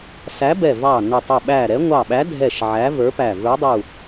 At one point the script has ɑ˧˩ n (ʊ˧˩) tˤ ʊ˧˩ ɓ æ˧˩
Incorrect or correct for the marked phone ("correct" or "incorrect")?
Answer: correct